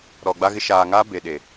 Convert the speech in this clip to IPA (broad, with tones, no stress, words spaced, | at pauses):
ɾɔ˨ɡ͡ba˦ɣɪ˦ ʃaː˨ŋaː˦ be˨ ɗe˨